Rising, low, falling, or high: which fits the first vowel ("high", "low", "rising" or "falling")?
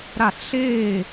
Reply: falling